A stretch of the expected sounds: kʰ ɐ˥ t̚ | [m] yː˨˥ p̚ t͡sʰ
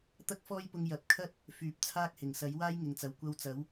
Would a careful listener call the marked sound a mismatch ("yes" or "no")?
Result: yes